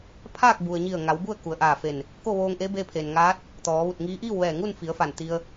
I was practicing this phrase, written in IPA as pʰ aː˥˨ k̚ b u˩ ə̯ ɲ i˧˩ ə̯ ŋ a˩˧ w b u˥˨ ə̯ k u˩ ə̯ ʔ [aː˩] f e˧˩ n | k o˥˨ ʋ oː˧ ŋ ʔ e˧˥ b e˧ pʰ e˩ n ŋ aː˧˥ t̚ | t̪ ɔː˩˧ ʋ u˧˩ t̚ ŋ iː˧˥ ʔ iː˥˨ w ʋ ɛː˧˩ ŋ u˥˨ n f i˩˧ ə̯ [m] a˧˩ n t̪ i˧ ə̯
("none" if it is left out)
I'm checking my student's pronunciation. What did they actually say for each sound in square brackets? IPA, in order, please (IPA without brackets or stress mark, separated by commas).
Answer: aː˧˩, f